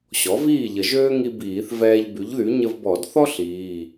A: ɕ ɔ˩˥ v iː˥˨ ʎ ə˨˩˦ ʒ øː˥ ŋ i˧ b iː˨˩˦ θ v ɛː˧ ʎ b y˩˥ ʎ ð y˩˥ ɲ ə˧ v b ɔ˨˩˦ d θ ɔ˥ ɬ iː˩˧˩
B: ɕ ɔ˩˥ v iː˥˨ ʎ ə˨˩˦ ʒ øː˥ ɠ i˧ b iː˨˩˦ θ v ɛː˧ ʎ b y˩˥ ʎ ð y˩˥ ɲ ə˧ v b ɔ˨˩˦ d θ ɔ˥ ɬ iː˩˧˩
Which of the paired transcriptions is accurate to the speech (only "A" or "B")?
A